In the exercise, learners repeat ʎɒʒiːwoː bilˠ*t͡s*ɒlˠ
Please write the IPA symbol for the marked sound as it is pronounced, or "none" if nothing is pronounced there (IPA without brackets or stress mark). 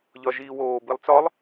t͡s